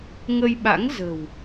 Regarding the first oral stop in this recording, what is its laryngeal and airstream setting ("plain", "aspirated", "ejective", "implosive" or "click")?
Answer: implosive